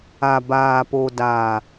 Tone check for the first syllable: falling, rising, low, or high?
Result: low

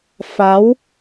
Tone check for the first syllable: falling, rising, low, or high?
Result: rising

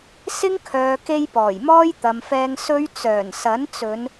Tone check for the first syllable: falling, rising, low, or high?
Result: high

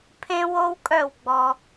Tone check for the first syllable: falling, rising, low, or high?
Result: high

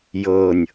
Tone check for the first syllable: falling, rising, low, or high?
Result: low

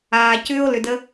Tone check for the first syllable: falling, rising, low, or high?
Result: low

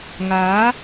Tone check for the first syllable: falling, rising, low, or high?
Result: rising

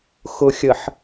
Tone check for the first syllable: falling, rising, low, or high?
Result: low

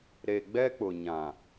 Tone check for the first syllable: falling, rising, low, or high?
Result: low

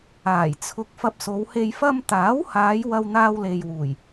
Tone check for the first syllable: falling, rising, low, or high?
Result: low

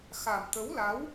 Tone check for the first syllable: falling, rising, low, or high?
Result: low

